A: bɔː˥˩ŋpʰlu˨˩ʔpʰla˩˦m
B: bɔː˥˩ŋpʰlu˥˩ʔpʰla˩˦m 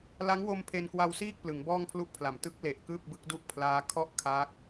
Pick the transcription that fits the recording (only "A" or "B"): B